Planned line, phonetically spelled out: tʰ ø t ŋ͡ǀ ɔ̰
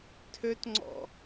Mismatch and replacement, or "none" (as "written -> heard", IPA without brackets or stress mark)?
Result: none